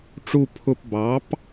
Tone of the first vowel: falling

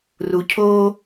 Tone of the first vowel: low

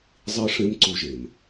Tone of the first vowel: high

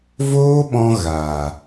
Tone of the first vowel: high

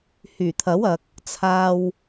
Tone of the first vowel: low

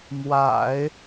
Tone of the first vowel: low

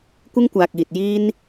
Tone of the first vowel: high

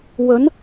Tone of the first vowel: rising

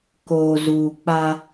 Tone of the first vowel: low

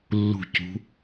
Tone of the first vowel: falling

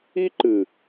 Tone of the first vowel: high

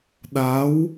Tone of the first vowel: rising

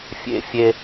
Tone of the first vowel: high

